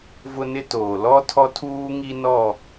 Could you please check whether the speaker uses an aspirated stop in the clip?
yes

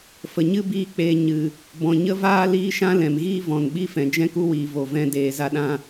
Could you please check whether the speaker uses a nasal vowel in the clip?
yes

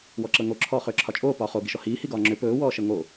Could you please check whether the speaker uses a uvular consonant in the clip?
yes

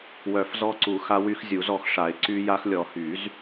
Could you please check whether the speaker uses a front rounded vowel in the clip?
yes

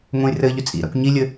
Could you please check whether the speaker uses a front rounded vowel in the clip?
yes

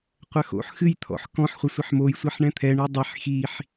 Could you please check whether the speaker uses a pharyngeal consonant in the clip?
yes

